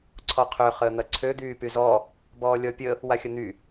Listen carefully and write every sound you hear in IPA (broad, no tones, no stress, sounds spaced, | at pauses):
ǀʰ ɔ qʰ ø χ əː n̪ ɐ ǀʰ ø d̪ yː p y z ɔ | b ɔː lʲ ɔ pʲ ə | w a xʲ ə n̪ y